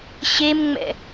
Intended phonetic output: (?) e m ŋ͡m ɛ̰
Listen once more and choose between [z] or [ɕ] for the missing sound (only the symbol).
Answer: ɕ